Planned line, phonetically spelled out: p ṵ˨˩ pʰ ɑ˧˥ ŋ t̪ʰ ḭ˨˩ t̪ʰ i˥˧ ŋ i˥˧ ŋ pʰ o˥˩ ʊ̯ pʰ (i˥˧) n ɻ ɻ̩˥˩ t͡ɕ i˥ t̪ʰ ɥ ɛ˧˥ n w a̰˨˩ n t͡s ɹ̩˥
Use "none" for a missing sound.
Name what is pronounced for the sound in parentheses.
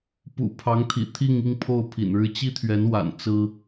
ḭ˨˩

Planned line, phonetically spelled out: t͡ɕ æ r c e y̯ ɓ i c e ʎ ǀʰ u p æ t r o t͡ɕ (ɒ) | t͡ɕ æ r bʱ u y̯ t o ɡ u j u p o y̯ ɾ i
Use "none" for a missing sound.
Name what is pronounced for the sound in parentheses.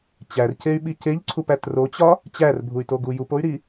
ɒ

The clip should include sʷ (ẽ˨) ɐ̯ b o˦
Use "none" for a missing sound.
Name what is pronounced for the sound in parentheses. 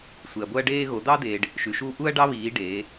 e˨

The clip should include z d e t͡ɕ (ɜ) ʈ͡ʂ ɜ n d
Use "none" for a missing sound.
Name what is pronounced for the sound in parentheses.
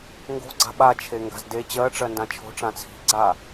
ɜ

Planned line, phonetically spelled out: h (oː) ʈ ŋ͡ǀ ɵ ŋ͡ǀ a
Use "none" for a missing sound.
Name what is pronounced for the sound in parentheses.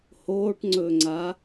oː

